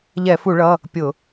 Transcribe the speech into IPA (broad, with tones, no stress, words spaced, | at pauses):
ʎɛ˧˩˧fu˧˩˧ɭʌ˩˧˩ | pʲʊ˧˩˧